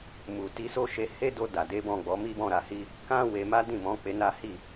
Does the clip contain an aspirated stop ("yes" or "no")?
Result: no